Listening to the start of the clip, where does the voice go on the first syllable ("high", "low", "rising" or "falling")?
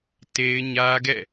high